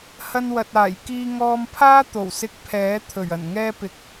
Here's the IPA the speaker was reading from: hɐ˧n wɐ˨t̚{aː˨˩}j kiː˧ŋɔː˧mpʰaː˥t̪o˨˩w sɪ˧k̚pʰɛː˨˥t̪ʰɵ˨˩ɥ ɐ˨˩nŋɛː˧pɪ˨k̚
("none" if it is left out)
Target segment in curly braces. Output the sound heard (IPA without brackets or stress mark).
aː˨˩